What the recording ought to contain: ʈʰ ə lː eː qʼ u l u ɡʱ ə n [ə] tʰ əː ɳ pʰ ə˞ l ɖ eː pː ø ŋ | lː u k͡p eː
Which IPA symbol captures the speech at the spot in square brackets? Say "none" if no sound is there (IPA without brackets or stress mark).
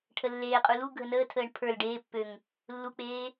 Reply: əː